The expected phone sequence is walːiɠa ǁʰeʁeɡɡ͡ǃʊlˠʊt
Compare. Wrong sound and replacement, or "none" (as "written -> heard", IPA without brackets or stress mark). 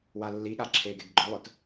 ʁ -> ɡ